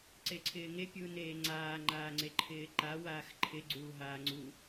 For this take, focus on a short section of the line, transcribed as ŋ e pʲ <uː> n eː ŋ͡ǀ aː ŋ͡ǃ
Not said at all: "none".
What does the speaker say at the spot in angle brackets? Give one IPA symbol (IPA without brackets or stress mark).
uː